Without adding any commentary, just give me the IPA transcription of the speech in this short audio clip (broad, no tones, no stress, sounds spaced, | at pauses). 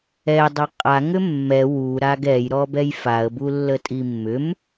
ɛ dˤ a qʼ a ŋ ʏ mː ɛ w u ɾ a ɡ ɛ j ɾ ɔ b ɛ j f a ə̯ b u lː ə tʼ i mː ʏ m